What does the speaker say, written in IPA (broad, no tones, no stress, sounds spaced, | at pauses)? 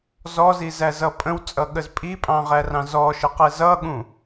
z ɔ z i z æ z ʌ pʼ ə̃ w t͡sʼ ʌ ɠ ə z pʼ i pʼ ɑ̃ ʁ æ r ɑ̃ z ɔ ʃ ə q ɛ z ʌ ɠ ũ